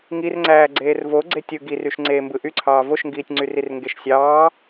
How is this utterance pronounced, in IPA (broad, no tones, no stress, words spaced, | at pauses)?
ŋirŋ͡ǀæː ɡ͡ǀeːrvo ɡ͡ǀetʲɯ ɡiryʃ ŋ͡ǀeːmbɯʔyǀʰɑː voʃŋɡiːtʲŋ͡ǀyrir ŋɡeʃsʲɑː